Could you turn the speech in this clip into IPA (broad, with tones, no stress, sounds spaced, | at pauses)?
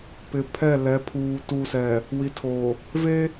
p ɪ˨ pʰ ɛ˦˨ l ɛ˨˦ pʰ uː˨ t u˨ s ɛ˨ | w i˨ tʰ o˨ | v e˦